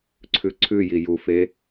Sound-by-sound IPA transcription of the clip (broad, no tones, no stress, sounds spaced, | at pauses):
ǀʰ ʉ ǀʰ ʉ j i j u f e